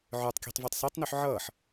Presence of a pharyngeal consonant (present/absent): present